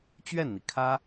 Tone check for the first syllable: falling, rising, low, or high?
falling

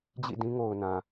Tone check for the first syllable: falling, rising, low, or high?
falling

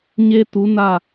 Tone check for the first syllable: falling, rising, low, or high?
high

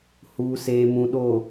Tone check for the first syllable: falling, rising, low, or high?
low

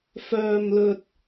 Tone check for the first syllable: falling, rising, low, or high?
low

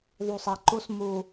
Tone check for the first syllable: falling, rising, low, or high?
low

